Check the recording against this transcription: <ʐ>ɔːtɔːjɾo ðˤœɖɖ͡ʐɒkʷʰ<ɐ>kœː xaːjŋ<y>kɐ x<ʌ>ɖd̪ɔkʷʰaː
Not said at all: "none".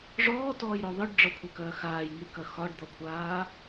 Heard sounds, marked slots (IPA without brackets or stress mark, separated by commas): ʐ, ɐ, y, ɒ